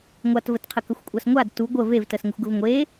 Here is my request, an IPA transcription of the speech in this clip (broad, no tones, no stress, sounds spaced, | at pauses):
ŋʷ a t v ə t qʰ ə k ə xʷ kʷʼ a s ŋʷ a d t u ɡʷ ə v e v t ə s ŋ ə xʷ ɡ ə v ŋʷ e